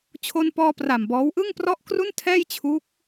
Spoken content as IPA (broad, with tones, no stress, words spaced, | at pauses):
t͡ɕʰo˧npɔː˧ pra˨˩mbɔː˦˥w ʔɯ˥˩ŋprɔ˥˩ʔkru˥˩ntʰɛː˥˩j t͡ɕʰu˦˥k̚